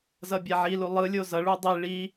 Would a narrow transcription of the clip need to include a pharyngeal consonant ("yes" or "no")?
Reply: yes